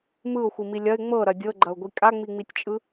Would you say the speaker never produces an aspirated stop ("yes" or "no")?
yes